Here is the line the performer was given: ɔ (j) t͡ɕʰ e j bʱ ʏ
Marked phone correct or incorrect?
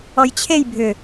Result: correct